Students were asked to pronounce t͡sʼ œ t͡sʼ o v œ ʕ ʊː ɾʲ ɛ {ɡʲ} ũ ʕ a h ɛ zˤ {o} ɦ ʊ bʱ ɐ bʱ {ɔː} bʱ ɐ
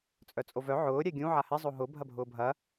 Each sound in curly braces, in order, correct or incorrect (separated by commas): correct, correct, incorrect